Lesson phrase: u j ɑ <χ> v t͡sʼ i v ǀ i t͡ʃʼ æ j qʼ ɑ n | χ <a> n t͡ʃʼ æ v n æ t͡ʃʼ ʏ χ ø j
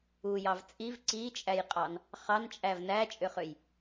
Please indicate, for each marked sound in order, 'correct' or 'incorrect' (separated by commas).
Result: incorrect, incorrect